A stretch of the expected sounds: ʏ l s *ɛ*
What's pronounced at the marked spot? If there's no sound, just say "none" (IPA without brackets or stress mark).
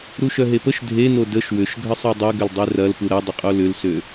ø